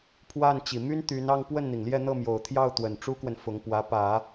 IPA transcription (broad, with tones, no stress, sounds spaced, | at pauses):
pʰ w a˥˩ n t͡ɕ i˨˩ m y˥ n t̪ y˧˥ n ɑ˥˧ ŋ p w ə˥˩ n n̪ i˩ ŋ l j ɛ˥˧ n̪ ɤ˥˩ m j o˨˩ ʊ̯ t̪ʰ j ɑ˥˩ ʊ̯ t̪ w ə˨˩ n ʈ͡ʂ u˥ k w ə˨ n f ʊ˧˥ ŋ p w ä˧˥ p ä˨˩˦